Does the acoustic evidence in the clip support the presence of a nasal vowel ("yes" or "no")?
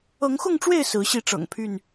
no